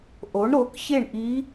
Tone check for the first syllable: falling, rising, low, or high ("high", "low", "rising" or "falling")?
rising